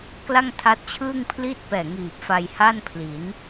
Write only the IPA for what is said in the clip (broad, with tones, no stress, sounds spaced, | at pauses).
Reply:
k l a˥˩ ŋ tʰ a˦˥ t̚ t͡ɕʰ ɯː˥˩ ŋ pʰ l i˥˩ t̚ p ɛː˨˩ ŋ iː˨˩ p̚ f a˧ j h a˥˩ n pʰ l i˩˦ n